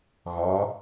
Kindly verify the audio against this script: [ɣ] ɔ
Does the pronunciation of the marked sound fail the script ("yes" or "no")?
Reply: no